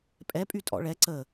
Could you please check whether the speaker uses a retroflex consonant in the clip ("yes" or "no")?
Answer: yes